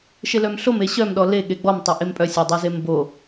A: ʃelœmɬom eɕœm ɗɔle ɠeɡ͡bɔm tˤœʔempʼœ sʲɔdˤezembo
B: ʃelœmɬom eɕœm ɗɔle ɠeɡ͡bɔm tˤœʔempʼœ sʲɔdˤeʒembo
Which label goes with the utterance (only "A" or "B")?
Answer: A